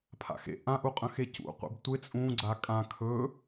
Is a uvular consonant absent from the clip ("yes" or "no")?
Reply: no